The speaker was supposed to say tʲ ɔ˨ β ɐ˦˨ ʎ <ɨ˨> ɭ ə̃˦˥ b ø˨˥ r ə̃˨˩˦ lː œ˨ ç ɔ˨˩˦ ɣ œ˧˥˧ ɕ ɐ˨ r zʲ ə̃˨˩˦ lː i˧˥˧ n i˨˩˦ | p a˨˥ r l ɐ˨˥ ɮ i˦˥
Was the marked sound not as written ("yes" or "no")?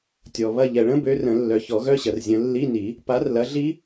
yes